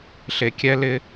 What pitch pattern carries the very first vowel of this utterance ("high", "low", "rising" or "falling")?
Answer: low